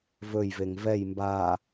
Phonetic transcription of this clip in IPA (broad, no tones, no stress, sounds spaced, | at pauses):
v ɵ j v e ŋ v ɛ j m b a